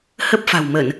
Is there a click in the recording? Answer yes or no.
no